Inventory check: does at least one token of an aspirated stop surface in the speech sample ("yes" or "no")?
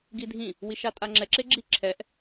yes